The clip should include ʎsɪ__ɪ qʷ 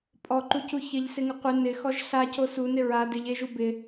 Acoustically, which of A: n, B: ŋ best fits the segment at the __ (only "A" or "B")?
B